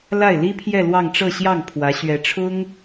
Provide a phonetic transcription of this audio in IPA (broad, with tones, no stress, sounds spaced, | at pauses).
l a˥˩ ɪ̯ l i˥ pʰ j ɛ˥˧ l w ɑ˥˧ ŋ ʈ͡ʂ ɤ˥˧ ɕ j ɑ˥˩ ŋ pʰ w ä˧˥ ɕ ɥ ɛ˧˥ ʈ͡ʂʰ ʊ˥ ŋ